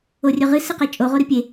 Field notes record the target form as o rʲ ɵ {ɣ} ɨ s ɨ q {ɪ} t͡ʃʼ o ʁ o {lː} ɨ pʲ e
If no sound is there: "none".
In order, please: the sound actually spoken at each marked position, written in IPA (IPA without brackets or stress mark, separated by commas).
ʁ, ɛ, ɾ